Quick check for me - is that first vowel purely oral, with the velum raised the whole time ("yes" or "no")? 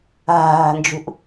yes